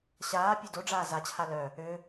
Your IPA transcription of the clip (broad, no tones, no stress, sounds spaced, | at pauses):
ɕ aː pʲ ø d o ɖ͡ʐ aː z a t͡ɕʰ a l œ | ø